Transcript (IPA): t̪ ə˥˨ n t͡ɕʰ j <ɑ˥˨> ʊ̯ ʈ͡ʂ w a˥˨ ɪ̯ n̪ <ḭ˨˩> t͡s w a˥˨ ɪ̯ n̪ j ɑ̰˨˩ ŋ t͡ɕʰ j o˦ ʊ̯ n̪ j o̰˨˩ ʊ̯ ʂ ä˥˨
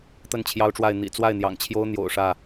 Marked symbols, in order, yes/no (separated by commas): no, yes